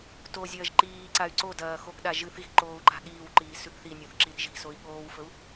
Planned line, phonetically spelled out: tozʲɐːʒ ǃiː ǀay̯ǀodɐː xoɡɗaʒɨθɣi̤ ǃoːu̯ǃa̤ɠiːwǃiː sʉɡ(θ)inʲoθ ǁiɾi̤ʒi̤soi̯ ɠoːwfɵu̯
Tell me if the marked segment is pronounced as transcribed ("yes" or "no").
yes